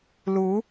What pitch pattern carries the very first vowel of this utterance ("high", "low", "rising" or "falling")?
rising